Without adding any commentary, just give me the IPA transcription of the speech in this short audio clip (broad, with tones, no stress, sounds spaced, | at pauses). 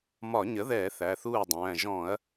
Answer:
m ɒ˧˩˧ ɲ ə˩˥ ð ɛː˧˩˧ θ æ˩˧˩ θ uː˥˩ ɐ̯ dˤ æ̃ː˩˧˩ ʒ ɔ̃˧˩˧ ɐ̯